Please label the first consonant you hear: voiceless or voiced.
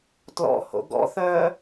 voiceless